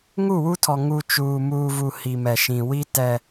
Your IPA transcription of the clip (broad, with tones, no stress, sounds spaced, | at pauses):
ŋ u˦˨ w u˦ tʰ ɔ˨ ŋ u˨ t͡ʃ uː˨ m uː˨ v u˨ h i˨ m ɛ˨ ʃ ĩ˨ w i˦ t ɛ˦